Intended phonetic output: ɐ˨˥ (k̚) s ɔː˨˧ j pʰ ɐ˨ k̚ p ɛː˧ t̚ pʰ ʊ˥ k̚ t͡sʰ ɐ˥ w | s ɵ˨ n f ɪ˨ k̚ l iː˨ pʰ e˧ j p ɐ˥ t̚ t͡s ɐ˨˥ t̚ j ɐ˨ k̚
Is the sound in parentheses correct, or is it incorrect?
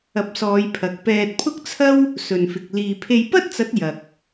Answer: incorrect